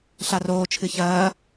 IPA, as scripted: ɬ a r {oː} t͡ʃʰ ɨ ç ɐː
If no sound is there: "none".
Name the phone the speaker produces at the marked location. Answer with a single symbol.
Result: oː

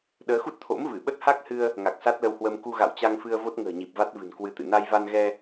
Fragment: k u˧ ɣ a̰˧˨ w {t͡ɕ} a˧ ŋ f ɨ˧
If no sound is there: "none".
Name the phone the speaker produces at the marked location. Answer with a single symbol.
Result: t͡ɕ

